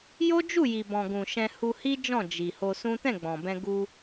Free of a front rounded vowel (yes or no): yes